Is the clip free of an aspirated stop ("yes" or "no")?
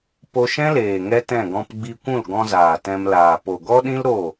yes